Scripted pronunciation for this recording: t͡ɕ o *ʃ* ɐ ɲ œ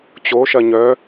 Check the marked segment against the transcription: correct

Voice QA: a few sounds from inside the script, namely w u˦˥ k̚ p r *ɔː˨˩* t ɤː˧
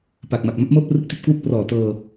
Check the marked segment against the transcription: correct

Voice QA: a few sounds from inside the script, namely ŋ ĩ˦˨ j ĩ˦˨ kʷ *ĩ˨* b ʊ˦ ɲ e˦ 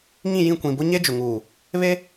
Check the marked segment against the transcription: correct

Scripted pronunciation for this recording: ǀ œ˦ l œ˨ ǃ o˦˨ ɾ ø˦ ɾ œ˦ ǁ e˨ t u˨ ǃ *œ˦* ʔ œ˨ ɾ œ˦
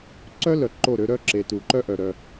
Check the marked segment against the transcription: correct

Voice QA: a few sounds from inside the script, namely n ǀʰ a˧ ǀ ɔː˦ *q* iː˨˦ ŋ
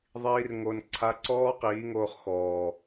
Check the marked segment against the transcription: correct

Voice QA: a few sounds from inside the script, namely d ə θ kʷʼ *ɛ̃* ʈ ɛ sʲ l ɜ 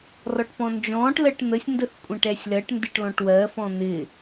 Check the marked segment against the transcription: correct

